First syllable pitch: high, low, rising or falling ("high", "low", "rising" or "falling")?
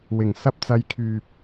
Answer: low